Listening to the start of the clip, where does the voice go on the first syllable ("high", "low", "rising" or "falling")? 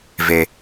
high